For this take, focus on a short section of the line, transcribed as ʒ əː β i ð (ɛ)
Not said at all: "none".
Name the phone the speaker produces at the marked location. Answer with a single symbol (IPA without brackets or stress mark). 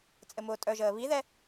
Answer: ɛ